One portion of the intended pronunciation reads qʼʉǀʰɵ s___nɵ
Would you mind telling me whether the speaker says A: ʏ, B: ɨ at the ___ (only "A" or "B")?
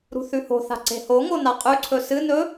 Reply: B